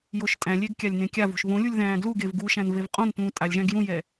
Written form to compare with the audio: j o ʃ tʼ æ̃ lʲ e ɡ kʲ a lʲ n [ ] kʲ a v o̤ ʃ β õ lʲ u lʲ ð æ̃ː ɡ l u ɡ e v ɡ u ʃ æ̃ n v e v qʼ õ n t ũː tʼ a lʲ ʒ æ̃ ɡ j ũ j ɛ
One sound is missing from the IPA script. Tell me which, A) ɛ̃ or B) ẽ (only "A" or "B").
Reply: B